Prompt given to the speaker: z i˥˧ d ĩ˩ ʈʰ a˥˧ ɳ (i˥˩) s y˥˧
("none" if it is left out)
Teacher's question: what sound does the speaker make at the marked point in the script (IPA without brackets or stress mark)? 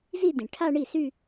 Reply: i˥˩